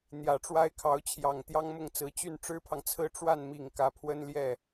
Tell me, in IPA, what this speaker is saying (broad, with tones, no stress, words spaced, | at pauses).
n̪jä˨˩ʈ͡ʂwa˥ɪ̯kʰɑ˧˥ʊ̯t͡ɕʰjɑ˨˩ŋ t̪jɑ˥ŋmʊ˥˩ŋt͡sɹ̩˧˥ t͡ɕy˥˩n ʈ͡ʂɻ̩˥pʰɑ˨ŋt͡sʰɹ̩˥ ʈ͡ʂwa˥˩nmi˨˩ŋ kä˧˥pʰwə˥nljɛ˥˩